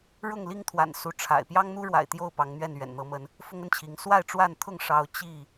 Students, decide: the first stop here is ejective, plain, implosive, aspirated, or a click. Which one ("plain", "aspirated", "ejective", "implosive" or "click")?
aspirated